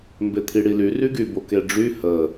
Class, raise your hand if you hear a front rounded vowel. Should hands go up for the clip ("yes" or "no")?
yes